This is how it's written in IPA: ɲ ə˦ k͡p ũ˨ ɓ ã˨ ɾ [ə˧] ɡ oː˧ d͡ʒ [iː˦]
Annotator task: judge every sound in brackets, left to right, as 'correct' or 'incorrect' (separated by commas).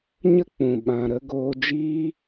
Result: correct, incorrect